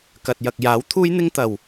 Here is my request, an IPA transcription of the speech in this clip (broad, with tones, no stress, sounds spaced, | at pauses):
k ɐ˨ t̚ j ɐ˨ k̚ j aː˨˥ w t̪ʰ uː˥ j n̪ ɪ˥ ŋ t̪ ɐ˨˩ w